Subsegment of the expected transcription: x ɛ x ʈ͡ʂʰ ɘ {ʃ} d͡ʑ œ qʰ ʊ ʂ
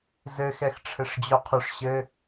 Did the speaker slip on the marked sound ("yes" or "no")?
yes